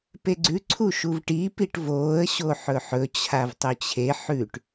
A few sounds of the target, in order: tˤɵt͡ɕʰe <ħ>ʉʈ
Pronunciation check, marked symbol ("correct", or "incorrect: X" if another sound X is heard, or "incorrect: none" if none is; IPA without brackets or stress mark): correct